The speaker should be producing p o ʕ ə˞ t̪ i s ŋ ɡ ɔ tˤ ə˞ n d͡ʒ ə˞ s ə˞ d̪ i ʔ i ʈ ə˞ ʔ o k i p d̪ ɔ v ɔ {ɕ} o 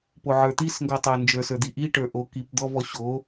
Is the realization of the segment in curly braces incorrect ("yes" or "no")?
no